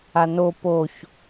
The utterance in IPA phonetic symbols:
a n o p o ç

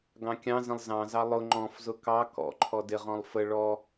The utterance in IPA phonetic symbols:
ɡ ɑ̃ kʲ ɑ̃ z ə̃ lˠ z ɑ̃ z ɑ lˠ ʊ ŋ͡ǃ ɔ̃ f z ʊ k ɑ k ɔ̰ ǃʰ ɔ d ɪ ʁ ɔ̃ lˠ f ə ɭ ɔ

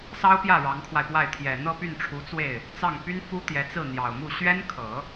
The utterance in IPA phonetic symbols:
s ɑ˥ ʊ̯ p j ä˥˩ ɻ ɑ˧˥ ŋ kʰ w a˧ ɪ̯ p w a˥˩ ɪ̯ t̪ʰ j ɛ˨˩ n̪ ɤ˥˧ p y˥˩ n ʈ͡ʂʰ u˧˥ t͡s w e˥˩ ɪ̯ | t͡s ɑ˥˩ ŋ p y˥ n f u˥ t̪ j ɛ˧˥ t͡s ɹ̩˥˩ n̪ j ɑ˨˩ ʊ̯ m u˥˩ ɕ ɥ ɛ˥ n kʰ ɤ˨˩˦

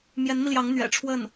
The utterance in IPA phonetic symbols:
m j ɛ˧˥ n m i˧ l j ɑ˧˥ ŋ n̪ ɥ ɛ̰˨˩ ʈ͡ʂʰ w ə˥˩ n

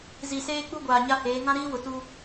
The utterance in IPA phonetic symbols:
z i˨ s eː˦ k͡p u˦ ɡʷ aː˨ ɲ a˦ h eː˨˦ ŋ ã˦ ɾ iː˦ w ʊ˨ t u˦

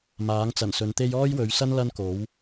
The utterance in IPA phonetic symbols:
m aː˨˥ ŋ t͡s ɐ˨˩ n s ɵ˨˧ n t̪ e˥ j ɔː˥ j w ɵ˨˧ ɥ s ɐ˥ n l ɐ˥ n k o˨˥ w

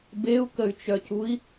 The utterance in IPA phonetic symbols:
b e u̯ k ə y̯ t͡ʃ œ c u i̯

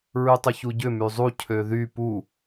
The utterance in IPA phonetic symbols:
ɹ y tˤ ʊ ç u ɟ ʏ m y zˤ u cʰ ø ð y p u

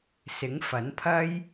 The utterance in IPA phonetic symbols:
s ɪ˨˥ ŋ f ɐ˨˥ n pʰ ɐ˥ j

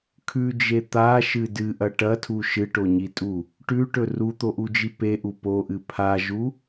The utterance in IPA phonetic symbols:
kʰ ʉ d͡ʒ e t̪ a ʃ ɨ d ɨ ʔ ɐ ʈ ɐ tʰ u ʃ ɨ ʈ o ɲ i tʼ u | ʈ ʉ ʈ ɵ r u t̪ o ʔ u d͡ʒ i p e ʔ u p o ʔ ɨ pʰ a ʒ u

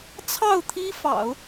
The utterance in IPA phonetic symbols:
t͡sʰ ɑ˥˩ ʊ̯ t̪ʰ i˥ f ɑ̰˨˩˦ ʊ̯

